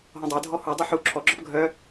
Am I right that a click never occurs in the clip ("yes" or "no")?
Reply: no